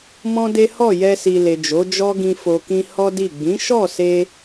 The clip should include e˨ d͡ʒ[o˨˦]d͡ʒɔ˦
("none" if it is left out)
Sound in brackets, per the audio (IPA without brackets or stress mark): o˨˦